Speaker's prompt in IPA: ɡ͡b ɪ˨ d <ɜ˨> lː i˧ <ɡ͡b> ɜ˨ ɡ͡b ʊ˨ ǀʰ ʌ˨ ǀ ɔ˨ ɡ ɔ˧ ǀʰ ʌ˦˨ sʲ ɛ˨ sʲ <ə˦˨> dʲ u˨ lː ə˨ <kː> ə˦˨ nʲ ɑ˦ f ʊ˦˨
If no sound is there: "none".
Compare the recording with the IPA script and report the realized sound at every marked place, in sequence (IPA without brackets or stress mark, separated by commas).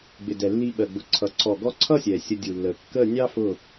ɛ˨, ɓ, ə˧, kː